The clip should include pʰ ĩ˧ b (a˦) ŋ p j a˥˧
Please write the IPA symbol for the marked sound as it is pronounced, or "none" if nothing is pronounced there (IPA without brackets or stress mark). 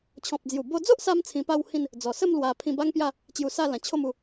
a˦